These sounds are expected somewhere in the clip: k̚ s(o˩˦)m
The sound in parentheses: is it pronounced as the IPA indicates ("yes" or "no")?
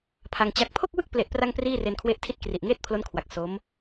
no